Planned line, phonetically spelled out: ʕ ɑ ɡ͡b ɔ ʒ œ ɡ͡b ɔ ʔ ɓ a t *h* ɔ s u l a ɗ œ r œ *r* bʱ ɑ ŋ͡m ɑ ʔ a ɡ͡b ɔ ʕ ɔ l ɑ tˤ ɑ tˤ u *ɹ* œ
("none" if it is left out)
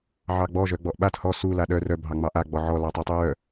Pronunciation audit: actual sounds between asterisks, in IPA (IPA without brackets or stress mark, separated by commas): h, none, ɹ